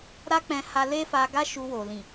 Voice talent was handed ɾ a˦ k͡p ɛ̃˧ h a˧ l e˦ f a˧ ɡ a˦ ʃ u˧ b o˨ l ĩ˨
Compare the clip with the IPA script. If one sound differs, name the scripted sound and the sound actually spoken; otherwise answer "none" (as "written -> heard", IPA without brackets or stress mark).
b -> w